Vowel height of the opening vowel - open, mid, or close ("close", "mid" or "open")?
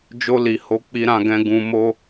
mid